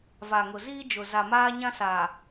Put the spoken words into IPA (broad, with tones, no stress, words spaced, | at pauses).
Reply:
va˨ŋʊ˨ziː˦ d͡ʒʊ˨ za˨ maː˦ɲã˦sa˨